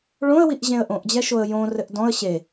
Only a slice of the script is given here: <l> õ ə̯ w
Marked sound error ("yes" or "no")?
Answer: yes